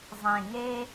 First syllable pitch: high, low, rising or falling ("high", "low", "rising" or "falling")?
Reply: low